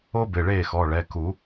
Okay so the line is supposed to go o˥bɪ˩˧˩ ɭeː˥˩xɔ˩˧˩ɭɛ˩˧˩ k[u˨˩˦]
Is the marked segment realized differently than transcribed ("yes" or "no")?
no